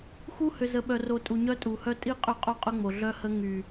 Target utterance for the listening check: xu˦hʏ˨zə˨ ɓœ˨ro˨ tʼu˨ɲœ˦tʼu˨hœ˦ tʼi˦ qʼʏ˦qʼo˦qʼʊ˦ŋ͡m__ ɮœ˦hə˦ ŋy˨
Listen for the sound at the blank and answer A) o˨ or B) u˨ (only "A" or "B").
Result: A